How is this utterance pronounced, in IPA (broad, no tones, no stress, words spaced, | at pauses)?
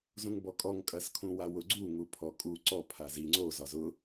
zũŋbɔkʼɔŋ kʼɐskʰũwawʊ ɡ͡ǀu ŋupʰɔkʼu ǀɔ pʰazi ŋ͡ǀo zɒzʊ